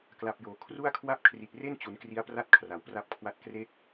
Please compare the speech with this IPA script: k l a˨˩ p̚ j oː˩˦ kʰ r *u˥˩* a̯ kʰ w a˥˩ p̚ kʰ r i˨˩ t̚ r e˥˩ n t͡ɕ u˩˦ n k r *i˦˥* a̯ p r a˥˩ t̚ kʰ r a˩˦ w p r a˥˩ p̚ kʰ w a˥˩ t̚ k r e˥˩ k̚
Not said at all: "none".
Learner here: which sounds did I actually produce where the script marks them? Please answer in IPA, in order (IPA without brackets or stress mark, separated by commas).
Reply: u˥˩, i˦˥